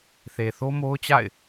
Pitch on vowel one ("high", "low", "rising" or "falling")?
low